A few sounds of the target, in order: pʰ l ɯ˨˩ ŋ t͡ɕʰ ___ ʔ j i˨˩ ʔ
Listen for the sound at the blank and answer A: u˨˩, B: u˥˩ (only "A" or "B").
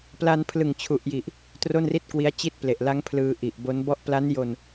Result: A